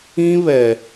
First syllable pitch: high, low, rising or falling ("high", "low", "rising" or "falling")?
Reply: high